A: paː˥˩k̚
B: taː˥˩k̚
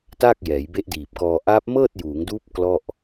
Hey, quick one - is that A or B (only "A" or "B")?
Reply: B